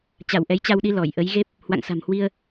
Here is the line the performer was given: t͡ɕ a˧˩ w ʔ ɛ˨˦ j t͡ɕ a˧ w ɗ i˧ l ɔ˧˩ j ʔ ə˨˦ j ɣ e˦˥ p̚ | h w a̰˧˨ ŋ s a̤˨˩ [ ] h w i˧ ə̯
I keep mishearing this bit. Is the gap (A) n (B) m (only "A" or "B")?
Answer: B